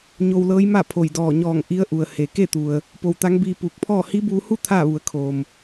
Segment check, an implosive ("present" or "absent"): absent